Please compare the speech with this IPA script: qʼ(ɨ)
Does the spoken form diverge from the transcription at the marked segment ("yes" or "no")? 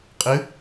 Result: no